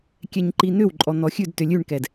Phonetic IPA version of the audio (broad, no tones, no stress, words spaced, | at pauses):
kʲɛɲǃin̪ʏw ǃʼɔn̪ɔxʲʉd tʏlʲʉɳkɛd